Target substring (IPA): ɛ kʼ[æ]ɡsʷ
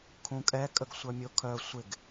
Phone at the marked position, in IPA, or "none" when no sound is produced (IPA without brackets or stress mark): ə